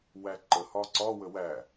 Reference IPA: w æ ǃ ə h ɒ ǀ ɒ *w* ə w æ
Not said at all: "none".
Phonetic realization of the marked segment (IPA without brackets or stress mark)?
w